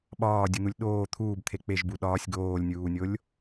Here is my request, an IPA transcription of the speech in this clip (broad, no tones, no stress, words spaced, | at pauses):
ɓɒːdʲun̪ulʲ ɗoː t̪ʰuːbt̪ʰe k͡peʒbu ɗɒːsʲ ɡoːlʲnʲuːnʲolʲ